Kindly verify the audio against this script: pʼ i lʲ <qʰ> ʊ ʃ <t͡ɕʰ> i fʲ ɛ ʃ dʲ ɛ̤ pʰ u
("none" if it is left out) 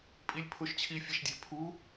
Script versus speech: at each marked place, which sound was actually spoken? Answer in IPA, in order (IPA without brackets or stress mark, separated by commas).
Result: pʰ, t͡ɕʰ